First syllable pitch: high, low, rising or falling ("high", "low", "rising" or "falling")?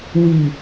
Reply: low